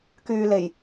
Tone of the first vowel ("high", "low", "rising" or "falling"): low